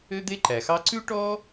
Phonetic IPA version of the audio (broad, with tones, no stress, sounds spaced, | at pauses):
ø˥ d̪ e˥ ǃ æ˩ x ɑ˥ ǀ ʉ˥ ʈ ɔ˥